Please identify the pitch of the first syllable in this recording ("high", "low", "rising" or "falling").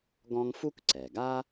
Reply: high